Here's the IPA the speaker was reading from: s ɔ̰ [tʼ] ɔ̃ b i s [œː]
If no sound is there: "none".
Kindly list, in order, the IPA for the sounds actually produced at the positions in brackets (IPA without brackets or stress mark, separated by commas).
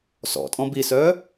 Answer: tʼ, œː